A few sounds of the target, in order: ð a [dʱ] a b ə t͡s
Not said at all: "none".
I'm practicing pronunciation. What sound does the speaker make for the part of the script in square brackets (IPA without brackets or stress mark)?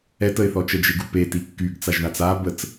t͡s